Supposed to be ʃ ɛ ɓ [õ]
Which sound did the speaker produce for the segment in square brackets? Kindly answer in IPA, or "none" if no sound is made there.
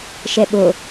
o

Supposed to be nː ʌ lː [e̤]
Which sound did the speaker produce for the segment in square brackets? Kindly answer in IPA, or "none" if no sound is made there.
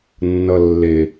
e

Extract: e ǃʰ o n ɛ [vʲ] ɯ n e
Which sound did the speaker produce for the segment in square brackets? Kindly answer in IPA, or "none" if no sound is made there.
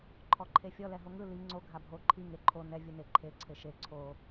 vʲ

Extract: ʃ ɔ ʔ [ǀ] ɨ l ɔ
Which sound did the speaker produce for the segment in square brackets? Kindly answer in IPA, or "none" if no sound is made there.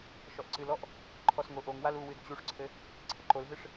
ǀ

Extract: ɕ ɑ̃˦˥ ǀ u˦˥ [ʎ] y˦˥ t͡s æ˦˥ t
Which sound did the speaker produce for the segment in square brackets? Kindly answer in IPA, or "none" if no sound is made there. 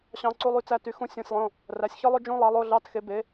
lˠ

